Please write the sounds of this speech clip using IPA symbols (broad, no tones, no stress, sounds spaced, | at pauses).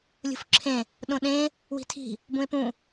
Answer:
lʲ ṳ f ǁʰ ẽ | ɗ õ ɗ ẽ | w i̤ tʰ i̤ | b ũ e̯ p ũ